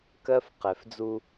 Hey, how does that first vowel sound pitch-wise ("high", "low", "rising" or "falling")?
high